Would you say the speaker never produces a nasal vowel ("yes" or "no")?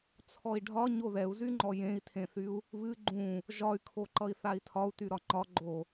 no